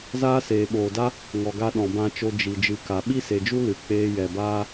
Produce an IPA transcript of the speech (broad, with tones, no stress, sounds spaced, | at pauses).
z aː˦ s eː˨ ɓ oː˨ d a˦ | ŋ ɔ˨ ɡ a˧ ɗ ɔ̃˨ b ã˧ t͡ʃ o˧ d͡ʒ i˨ d͡ʒ ɨ˨˦ k a˨ ɓ i˦ s e˨ d͡ʒ u˦ l ɨ˨ k͡p eː˧ j ɛ˨ b aː˧